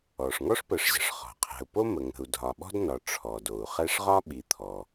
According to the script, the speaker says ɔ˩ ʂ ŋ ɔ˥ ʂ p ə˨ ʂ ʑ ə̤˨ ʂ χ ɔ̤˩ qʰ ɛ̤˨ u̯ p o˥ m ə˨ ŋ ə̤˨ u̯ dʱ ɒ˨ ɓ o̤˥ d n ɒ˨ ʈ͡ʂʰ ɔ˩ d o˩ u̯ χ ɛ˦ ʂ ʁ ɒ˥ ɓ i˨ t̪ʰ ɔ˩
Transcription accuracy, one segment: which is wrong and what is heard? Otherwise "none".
o̤˥ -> ɔ̤˥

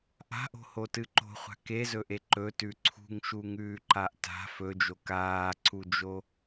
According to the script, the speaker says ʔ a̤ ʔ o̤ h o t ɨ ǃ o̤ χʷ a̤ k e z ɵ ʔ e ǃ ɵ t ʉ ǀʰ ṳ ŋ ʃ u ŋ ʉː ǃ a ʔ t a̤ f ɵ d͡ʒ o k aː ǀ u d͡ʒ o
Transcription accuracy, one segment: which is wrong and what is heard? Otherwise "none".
none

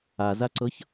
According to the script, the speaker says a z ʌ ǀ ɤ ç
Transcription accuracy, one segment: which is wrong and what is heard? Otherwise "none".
ʌ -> a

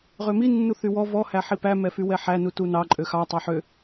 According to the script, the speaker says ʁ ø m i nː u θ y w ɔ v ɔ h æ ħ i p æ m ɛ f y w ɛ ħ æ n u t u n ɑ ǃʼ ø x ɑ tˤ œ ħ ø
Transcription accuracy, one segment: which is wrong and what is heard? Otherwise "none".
none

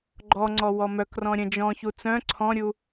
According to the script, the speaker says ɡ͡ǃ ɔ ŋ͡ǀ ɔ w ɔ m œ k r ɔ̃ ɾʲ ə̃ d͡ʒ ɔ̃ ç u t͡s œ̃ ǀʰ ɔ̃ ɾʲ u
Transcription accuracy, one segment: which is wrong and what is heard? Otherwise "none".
none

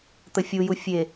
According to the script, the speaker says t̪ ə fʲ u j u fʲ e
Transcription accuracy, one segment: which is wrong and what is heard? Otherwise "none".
none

